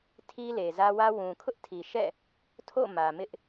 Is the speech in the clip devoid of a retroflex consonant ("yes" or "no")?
yes